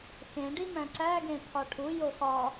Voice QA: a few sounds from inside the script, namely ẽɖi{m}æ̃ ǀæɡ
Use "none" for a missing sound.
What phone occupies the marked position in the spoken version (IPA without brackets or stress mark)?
m